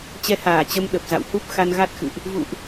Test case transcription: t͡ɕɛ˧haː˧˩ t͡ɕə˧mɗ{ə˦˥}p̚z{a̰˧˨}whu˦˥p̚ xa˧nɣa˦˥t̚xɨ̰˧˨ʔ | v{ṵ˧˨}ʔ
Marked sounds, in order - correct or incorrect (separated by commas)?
incorrect, correct, correct